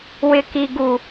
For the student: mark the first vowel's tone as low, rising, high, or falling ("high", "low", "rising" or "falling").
high